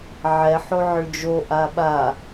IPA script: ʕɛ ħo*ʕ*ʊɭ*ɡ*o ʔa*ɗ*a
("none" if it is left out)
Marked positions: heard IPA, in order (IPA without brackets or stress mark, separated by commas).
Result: ʕ, d͡ʒ, ɓ